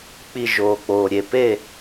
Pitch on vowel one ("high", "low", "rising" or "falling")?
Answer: falling